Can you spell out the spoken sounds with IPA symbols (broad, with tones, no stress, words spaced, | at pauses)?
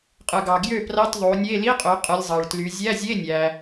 qʼɯ˩ɡɑ˩ ɡjø˥˩prɑ˧˥˧tðˤo˩˧nʲe˧˥˧ li˧˥˧qʼø˩˧ qʼɯ˩˧lʲzˤɑ˩ɭtly˩˧ zʲæ˧˥˧zʲe˧˥˧nʲæ˩